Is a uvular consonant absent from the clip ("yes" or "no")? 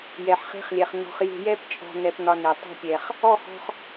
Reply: no